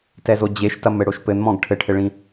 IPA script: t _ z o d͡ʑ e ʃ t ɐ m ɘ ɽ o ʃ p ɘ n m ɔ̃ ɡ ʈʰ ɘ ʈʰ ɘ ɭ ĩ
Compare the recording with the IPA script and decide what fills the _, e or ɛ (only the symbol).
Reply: ɛ